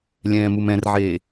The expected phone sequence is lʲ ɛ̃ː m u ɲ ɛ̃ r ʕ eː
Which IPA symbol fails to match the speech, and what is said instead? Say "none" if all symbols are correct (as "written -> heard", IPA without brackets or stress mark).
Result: ɲ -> m